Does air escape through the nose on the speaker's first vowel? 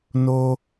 no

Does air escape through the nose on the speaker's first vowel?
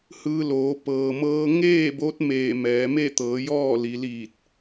no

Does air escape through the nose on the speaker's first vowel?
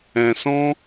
yes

